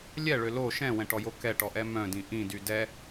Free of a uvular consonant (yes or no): yes